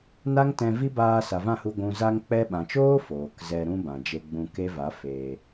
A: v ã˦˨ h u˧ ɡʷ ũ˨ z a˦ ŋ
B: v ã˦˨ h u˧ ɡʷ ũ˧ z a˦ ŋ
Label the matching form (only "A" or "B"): B